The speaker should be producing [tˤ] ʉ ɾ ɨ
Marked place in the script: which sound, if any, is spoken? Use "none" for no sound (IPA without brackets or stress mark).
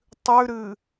tˤ